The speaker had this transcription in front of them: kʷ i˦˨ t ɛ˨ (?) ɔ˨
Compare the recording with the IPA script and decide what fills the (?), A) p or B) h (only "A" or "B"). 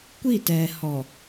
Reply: B